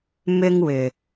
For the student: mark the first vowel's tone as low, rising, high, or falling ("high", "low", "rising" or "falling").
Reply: high